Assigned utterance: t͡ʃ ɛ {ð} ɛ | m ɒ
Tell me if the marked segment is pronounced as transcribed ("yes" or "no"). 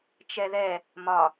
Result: yes